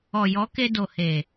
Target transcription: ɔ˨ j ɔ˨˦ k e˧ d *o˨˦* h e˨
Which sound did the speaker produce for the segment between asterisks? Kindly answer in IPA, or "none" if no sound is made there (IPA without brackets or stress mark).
o˨